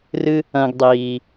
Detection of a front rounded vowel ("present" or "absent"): absent